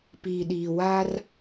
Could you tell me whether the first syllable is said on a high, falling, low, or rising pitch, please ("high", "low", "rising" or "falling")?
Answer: low